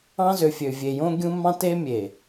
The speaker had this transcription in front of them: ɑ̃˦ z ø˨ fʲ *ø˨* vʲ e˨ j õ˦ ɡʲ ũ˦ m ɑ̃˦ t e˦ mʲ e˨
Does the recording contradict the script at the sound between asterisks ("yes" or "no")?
no